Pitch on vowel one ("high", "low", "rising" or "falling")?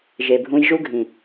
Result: low